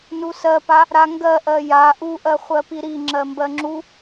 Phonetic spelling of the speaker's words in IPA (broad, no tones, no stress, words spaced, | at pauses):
nusɜpa | ɾaŋɡɜʔɜ ja ʔuʔɜ χʷɜpiɾi ŋ͡ǁɜmbɜŋ͡ǁu